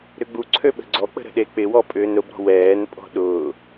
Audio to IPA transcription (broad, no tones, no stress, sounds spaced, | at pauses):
ɾ ʏ ɡ͡b u ǀʰ ø ɓ ə̤ ɡ͡ǀ ɔ k͡p ə̤ ɾ ə̤ ɗ e k͡p ɪ w ɔ pʼ ʏː n ɾ ʊ b ɾ ɔ̤ w ɛː n pʼ ɔ̤ ɗ ʊː